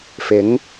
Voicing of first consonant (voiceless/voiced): voiceless